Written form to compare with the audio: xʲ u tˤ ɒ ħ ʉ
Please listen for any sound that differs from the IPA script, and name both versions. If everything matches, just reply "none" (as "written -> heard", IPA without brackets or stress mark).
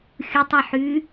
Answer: none